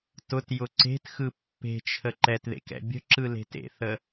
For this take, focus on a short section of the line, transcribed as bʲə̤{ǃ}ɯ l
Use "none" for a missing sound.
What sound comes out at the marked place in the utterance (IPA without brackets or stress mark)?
ǁ